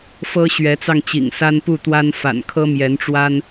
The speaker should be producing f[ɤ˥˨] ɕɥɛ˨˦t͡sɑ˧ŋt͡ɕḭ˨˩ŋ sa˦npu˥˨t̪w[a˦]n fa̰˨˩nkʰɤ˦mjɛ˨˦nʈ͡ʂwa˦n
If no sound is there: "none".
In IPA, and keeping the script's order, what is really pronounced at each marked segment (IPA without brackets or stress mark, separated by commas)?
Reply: ɤ˦, a˦